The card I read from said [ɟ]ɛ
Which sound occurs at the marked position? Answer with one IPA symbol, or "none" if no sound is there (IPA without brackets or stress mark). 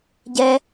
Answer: ɟ